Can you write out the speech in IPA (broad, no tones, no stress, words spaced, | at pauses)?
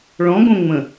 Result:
ɭɔ̃ɡõ ŋ͡mə̃